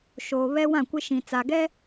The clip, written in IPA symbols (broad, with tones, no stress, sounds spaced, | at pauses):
ʃ oː˨ β ɛ˦ w ã˦˨ kʷ ɪ˦ ʃ ĩ˨ t͡s a˨ ɡ ɛ˦